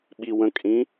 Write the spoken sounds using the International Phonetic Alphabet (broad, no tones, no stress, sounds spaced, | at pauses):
ɓ i w ə̃ kʼ ĩ